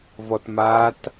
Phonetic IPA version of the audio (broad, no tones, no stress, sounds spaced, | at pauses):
v ɔ t m a t